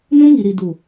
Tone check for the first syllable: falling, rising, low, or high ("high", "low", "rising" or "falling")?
high